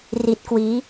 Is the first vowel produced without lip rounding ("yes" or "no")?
yes